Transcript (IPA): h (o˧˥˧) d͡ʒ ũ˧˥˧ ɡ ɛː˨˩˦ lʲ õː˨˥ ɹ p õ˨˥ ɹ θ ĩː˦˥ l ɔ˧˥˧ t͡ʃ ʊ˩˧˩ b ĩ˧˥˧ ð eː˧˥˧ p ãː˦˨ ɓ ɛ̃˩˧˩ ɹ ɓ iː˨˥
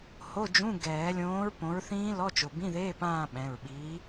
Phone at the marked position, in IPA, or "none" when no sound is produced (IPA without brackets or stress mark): o˧˥˧